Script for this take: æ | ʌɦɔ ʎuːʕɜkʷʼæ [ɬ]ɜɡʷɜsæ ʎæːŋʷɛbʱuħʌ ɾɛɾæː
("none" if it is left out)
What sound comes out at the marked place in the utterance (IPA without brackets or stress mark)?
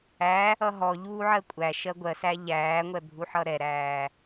ʃ